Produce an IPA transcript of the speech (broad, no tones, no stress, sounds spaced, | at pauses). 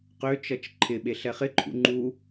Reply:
q ø t͡ʃ ʌ t͡ʃ ǃʰ ɪ ɓ e ɬ ɛ χ ɪ ǃʰ ṵ ŋ͡ǃ u